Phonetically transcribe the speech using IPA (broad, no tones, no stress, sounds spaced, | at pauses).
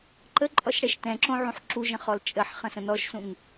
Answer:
ǃ ə ǃʼ ɔ ʃ ɽ ɛ ʃ t ɛ̃ ǁ õ ʕ ũ ħ ǁ u ʒ ə̃ χ ɔ l t͡ʃʼ ə ħ χ ə̃ s ə̃ n ɔ ʃ s ũ ŋ